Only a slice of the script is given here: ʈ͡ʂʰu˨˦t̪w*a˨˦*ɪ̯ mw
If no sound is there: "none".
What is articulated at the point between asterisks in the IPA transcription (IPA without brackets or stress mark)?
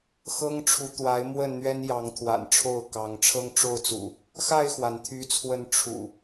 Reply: a˨˦